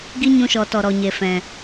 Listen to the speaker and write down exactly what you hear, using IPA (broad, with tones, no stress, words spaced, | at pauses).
ɡi˦ɲũ˧ʃɔ˨ tɔ˨ɾɔ˨ɲe˨ fɛ̃˨